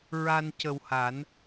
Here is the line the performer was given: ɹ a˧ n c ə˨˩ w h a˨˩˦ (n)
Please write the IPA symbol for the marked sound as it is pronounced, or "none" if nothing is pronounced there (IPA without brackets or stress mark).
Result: n